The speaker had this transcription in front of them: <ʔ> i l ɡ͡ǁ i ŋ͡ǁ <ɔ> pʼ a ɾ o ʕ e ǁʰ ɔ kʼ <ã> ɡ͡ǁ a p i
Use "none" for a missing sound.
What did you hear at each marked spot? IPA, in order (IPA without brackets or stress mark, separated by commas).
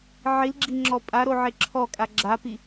ʕ, ɔ, a